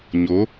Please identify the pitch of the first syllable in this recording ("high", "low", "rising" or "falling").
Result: rising